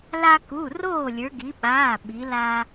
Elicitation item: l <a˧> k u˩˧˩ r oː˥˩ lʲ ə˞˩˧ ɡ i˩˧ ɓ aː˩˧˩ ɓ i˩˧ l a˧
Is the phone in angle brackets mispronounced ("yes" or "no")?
no